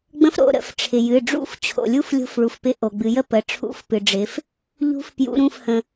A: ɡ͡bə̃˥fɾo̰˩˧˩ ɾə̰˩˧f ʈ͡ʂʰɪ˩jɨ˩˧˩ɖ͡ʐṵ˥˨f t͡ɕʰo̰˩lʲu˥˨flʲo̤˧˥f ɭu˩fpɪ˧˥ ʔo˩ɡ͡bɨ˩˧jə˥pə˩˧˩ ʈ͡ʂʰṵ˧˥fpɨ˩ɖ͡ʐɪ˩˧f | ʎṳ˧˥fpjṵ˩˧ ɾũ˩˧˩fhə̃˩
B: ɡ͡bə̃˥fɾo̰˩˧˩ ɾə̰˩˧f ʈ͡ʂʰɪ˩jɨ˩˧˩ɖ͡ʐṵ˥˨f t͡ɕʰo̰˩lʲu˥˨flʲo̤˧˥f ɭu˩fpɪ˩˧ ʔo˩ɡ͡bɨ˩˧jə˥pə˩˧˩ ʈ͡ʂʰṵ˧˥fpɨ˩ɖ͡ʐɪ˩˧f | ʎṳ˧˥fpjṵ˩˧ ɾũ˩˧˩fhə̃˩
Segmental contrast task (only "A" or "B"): A